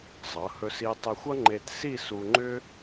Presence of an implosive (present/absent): absent